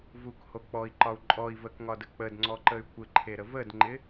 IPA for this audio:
v u k h o k͡p ɔ i̯ ǃ ɒ u̯ ǃʼ ɔ i̯ v ə k ŋ ɒ d ə k͡p ə d ŋ͡ǀ ɔ ǃ ə y̯ kʷ ɪ ǃʰ e ɾ ə v ə d ŋ͡ǃ ɪ

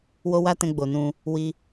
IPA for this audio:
w o˦ w a˦ t ɛ̃˧ ɡ͡b o˨ n ũ˧ | w i˧

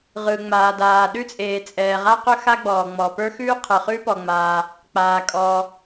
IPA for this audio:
ʁ ɯ˩ ŋ͡m aː˩ d aː˩ ɗ ʉ˥ t͡sʼ eː˩ t͡sʼ ɛː˩ ʁ a˥ q ɵ˥ x a˥ ɡ͡b ɔː˩ ŋ͡m ɔ˩ p ə˞˥ x ʉː˥ qʰ ɯ˩ χ ʉ˥ p ɔ˩ ŋ͡m aː˩ | k͡p aː˩ kʼ ɔː˩

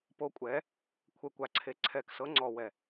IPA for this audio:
p o˨˦ kʷʼ ɛ˨˦ | kʷʰ ɛ˨ kʷ a˨ ǀʰ e˨ ǀʰ ɛ˨ k s ɤ˨˦ ŋ͡ǀ ɔ˨ w ɛ˨

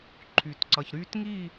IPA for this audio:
ǃʰ yː˨ t ǀ ʌ˨ ç ɾ yː˦ t ŋ i˦˨

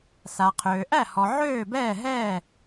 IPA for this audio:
s a˨ qʰ øː˨ ʔ æ˥˨ h ɔ˨ ʕ øː˥˨ b ɛː˥˨ ɦ ɛː˥˨

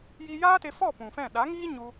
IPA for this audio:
j i˧ j aː˦ t e˧ f ɔ˦˨ p ũ˨ f ɛ̃˦˨ ɗ a˨˦ ŋ iː˦ ɲ u˧

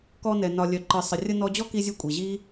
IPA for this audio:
k ɔ˧ n ɛ˨ n ɒ˨ lʲ œ˨ ǃ ɨ˨ sˤ ə˨ rʲ ə˧ n ɔ˧ d͡ʑ ɔ˦ k i˧ zʲ ɨ˧ kʷʼ i˨ ʑ i˦

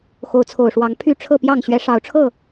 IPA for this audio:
x o˨˦ ʊ̯ t͡sʰ o˨˩ ʊ̯ ʂ w ɑ˨˦ ŋ pʰ y˥˨ ʈ͡ʂʰ ɤ˥˨ p j ɑ˥˨ ŋ ɕ ɥ ɛ˨˦ ʂ ɑ˨˦ ʊ̯ ʈ͡ʂʰ ɤ˥˨

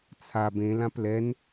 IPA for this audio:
t͡sʰ a b ẽ l ã p l ɛ n

